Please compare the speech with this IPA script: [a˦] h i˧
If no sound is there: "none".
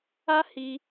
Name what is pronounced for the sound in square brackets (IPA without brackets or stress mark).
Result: a˦